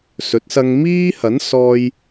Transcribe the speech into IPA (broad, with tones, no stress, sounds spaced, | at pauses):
s ɵ˨˥ t̚ s ɐ˧ ŋ m iː˥ h ɐ˨˥ n s ɔː˧ j